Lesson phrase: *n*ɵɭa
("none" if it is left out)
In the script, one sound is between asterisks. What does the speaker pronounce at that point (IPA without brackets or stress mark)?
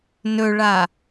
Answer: n